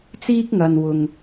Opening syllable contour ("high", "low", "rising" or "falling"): high